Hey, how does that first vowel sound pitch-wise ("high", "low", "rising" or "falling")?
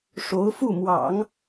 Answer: rising